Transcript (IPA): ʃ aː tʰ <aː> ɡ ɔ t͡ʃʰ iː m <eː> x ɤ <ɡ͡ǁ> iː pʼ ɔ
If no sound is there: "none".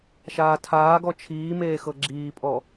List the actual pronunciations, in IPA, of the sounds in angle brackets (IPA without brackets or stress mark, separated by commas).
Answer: aː, eː, ɡ͡ǁ